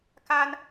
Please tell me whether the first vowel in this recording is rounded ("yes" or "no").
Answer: no